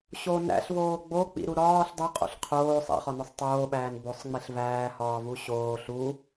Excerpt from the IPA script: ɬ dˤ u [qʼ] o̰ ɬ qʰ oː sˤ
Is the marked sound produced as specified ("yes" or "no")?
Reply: yes